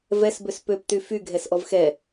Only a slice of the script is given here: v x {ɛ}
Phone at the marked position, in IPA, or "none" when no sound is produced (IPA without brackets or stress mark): ɛ